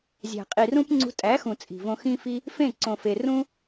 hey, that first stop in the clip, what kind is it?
ejective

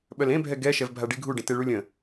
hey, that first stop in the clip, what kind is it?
implosive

